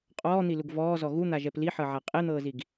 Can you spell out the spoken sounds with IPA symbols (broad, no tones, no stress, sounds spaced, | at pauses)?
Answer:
qʼ ɔː n̪ i l u ɡ v ɔː z ɔ ɣ u n̪ a ʒ ɛ p l i ħ ɤ ʕ a qʼ e n̪ ɤː z i ɡ